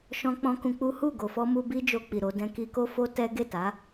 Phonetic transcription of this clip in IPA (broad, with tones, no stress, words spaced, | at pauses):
ʃɔ̃˦ k͡pɔ̃˦kũ˧k͡pu˦ hu˦˨ɡo˨fɔ˧ mu˧bi˦ d͡ʒo˧k͡pi˨ ɾo˨˦dɛ̃˦ ki˧ko˦fo˦tɛ˦ ɡe˦˨ta˨˦